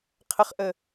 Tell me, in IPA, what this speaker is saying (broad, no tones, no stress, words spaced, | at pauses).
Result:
qʰəχʔə